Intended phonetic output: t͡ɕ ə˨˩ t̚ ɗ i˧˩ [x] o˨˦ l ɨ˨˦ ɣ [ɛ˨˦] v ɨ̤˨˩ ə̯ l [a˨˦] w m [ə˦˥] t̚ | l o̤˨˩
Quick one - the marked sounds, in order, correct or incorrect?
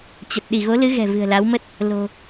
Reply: incorrect: ɣ, incorrect: ɛ̤˨˩, correct, correct

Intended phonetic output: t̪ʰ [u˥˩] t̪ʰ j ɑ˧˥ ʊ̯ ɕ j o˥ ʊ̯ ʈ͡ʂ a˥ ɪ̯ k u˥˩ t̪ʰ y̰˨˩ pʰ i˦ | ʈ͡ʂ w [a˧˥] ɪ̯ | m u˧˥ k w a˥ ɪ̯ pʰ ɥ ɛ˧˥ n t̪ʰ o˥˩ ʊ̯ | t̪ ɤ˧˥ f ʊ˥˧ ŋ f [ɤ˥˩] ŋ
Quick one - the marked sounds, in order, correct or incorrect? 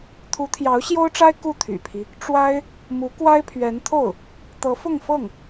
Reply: incorrect: u˧˥, incorrect: a˥, correct

